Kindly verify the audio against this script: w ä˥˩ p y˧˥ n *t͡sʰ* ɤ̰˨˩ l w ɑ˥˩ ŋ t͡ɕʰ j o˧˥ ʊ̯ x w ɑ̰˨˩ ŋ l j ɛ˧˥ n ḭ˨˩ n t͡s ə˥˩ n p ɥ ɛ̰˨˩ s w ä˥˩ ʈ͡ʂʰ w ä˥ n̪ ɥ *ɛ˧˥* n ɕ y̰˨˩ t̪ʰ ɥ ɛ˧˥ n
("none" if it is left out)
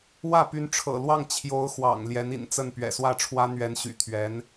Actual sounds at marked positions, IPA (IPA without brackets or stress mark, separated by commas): ʈ͡ʂʰ, ɛ˧˥